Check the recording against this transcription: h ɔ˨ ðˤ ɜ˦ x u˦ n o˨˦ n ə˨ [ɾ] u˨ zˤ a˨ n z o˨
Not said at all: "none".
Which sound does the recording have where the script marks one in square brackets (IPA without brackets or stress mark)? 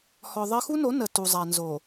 t